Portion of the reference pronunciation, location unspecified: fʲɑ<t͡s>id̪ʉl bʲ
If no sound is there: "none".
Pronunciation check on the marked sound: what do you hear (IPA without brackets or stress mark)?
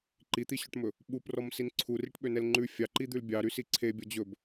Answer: ǃ